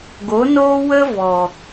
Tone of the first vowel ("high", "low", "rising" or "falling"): rising